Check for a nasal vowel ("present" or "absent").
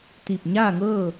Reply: absent